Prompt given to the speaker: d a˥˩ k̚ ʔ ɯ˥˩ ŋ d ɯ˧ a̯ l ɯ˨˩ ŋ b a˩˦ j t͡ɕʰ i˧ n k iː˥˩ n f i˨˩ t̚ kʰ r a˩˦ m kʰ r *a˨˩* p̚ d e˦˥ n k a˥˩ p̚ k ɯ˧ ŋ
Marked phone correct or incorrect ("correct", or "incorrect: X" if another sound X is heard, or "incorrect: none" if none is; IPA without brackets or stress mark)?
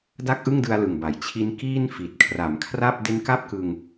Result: incorrect: a˥˩